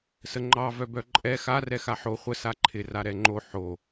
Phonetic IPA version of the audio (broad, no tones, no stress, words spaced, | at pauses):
səŋ͡ǃɑ vœbœǃʼɛ xa rɛxaħo χʷə saǃʰɪ raɾɛŋ͡ǃo ħo